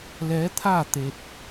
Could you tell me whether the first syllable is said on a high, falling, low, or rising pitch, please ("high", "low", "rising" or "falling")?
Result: rising